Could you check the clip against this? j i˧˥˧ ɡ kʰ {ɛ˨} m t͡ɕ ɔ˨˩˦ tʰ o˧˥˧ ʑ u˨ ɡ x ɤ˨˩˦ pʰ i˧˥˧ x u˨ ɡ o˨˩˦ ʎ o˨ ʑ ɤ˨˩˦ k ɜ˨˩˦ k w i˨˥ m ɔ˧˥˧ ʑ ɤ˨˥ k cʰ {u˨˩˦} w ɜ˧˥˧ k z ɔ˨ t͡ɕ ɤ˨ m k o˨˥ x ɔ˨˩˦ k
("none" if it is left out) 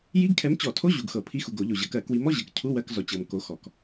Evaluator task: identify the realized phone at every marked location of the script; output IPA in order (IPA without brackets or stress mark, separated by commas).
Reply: ɛ˨˥, u˧˥˧